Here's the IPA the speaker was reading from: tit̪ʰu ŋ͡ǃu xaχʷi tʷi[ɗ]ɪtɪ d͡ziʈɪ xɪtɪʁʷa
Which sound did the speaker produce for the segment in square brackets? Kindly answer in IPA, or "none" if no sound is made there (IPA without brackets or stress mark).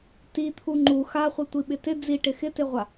ɓ